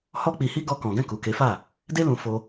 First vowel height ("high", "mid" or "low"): mid